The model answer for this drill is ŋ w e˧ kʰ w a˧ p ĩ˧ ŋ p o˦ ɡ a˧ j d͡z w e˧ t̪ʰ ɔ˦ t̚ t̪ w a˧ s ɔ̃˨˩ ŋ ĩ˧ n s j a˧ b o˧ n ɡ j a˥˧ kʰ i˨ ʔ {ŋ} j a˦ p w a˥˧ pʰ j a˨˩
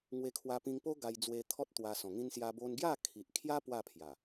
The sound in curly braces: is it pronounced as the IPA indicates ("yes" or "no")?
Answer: no